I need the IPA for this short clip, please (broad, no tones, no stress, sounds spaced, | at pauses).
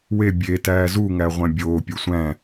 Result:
w e bʲ e t æː z u ŋ æ ʁʷ æ̃ bʲ oː pʲ u sʷ æ̃